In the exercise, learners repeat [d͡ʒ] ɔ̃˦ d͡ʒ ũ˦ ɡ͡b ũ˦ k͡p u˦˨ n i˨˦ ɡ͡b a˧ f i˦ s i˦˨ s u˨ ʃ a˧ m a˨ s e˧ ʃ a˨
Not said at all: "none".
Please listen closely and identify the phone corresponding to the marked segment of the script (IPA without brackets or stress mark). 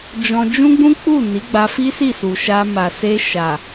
d͡ʒ